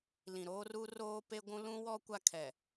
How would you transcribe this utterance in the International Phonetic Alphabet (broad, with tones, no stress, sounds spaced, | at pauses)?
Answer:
l ĩ˨ ɾ oː˦ r u˦ r oː˦ p e˦ ɡʷ ũ˦ l ũ˦ w ɔ˦ kʷ a˦ kʰ ɛ˨